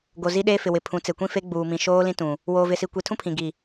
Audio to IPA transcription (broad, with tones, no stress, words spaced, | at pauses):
ɡo˨zi˦ɗeː˦ fɪ˨wɪ˨ pʰũ˨˦t͡se˨kʷĩ˦fe˦ ɡ͡buː˨mĩ˨ ʃoː˦ lĩ˦tũ˨ | woː˨vɪ˨si˨kʷi˨ tʰũ˦pʰĩ˨ ɡi˨